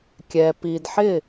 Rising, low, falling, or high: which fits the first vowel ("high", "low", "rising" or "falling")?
low